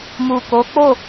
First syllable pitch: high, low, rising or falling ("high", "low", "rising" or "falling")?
low